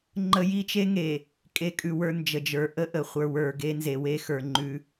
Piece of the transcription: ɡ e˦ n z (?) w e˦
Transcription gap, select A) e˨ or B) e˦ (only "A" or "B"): A